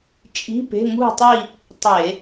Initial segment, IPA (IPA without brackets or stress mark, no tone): t͡ʃʼ